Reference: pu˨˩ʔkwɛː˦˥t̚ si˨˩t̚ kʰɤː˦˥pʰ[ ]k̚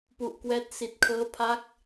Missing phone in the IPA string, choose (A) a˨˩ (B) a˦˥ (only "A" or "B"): B